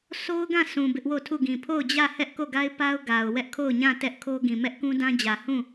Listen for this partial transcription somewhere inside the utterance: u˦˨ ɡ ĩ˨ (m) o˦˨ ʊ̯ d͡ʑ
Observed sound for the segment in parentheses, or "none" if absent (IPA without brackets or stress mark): pʰ